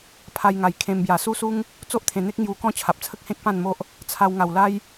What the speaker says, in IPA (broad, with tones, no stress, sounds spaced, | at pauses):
pʰ a˧ j ŋ a˨˩ j kʰ ẽ˧ m b j a˨˩ s u˦ s u˦ ŋ | t͡s o˦ ʔ t̪ʰ ẽ˨˩ n̪ e˦ k̚ ŋ j u˧ k ɔ̃˥˧ t͡ɕʰ a˨ p̚ t͡sʰ ə˦ k̚ h ẽ˦ k̚ p ã˥˧ n m o˦ ʔ | t͡sʰ a˧ w ŋ a˨˩ w l a˦ j